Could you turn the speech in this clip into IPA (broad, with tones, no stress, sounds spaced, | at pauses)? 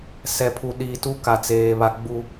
s ɛ˨ pʰ u˨ ɗ iː˨ t u˦ k a˨ t͡s eː˨ β a˨ ɡ͡b u˨